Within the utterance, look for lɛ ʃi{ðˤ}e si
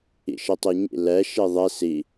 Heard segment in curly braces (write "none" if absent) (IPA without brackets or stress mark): ðˤ